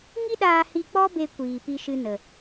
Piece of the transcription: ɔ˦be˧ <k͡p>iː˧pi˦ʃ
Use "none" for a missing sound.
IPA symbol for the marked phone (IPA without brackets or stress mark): kʷ